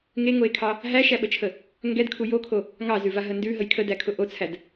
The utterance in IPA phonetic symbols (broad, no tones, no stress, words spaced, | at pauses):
ŋeŋoe̯kʰɑ | ɦæʃæɓət͡ʃʰə | ŋɡɛdkʰu jokʰo | ŋɑzʉvaɦə ndʉɦəj kʰədækʰʊ ʔot͡sʰæd